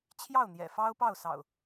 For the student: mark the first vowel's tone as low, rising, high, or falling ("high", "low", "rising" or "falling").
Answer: falling